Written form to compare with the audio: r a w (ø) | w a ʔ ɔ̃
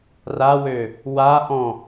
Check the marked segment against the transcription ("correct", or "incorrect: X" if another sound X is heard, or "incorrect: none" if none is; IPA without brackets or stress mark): correct